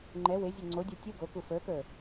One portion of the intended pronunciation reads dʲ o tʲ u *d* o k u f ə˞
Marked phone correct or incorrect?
incorrect